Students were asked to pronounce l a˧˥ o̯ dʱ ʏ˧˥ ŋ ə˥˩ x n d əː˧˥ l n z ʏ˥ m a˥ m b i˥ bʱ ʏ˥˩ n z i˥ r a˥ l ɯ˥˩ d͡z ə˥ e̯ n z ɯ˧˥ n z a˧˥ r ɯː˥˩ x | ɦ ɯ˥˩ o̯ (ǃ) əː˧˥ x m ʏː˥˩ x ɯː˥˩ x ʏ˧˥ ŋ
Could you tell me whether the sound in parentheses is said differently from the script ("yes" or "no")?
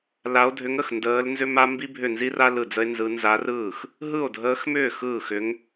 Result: yes